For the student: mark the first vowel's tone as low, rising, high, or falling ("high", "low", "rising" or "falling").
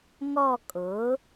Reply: falling